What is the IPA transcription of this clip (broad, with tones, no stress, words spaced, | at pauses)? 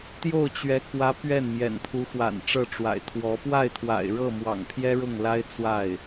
t̪jo˥˩ʊ̯t͡ɕɥɛ˧˥kwä˧˥ pɥɛ˥˩nmjɛ̰˨˩nt̪ʰu˧˥xwa̰˨˩n ʈ͡ʂɤ˥˩ʈ͡ʂwa̰˨˩ɪ̯t̪ʰwɔ˧˥ pwa˥˩ɪ̯t̪ʰwa̰˨˩ɪ̯ ɻɤ˥˩mwɑ̰˨˩ŋpʰjɛ˥ ɻʊ˥˩ŋla˥ɪ̯t͡swa˥˩ɪ̯